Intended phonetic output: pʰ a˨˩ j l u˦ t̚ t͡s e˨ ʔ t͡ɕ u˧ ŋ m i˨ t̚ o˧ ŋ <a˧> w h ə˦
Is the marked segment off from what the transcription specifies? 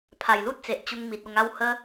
yes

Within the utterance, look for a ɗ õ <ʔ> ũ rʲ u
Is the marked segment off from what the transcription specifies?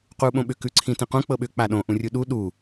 no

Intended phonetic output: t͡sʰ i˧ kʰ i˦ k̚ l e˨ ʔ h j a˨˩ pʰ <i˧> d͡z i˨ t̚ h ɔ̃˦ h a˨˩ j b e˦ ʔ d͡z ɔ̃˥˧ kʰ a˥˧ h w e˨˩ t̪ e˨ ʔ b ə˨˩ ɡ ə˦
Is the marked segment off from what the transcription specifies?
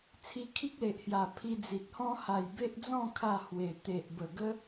no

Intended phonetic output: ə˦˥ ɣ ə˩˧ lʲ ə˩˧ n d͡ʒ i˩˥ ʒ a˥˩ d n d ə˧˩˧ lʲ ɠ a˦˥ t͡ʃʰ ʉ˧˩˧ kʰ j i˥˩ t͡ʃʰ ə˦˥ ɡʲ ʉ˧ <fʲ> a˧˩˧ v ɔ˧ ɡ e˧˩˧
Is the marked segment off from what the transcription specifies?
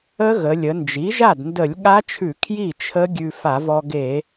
yes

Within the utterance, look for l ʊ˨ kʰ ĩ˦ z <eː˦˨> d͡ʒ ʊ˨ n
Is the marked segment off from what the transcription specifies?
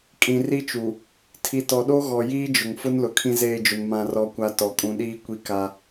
no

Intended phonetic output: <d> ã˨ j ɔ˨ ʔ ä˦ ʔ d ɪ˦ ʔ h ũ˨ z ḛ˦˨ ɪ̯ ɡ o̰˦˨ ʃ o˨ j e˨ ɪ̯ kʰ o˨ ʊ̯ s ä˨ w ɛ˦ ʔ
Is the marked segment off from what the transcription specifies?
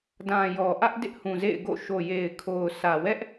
no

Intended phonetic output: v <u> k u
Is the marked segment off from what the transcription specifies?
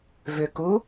yes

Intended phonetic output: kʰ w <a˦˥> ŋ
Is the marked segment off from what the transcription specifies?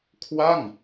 yes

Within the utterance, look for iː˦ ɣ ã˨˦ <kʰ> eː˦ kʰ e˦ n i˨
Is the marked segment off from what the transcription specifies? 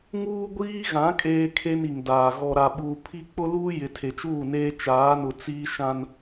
yes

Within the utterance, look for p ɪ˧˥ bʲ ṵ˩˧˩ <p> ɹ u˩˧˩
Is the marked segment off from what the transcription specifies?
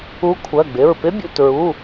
yes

